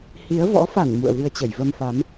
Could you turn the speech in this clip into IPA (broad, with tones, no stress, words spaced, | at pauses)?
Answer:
hi˨˦ə̯ vɔ̰˧˥fa˧˩n mṵ˧˨ə̯vɨ˧ə̯t͡ɕə˧˩j və˧mfa˨˦m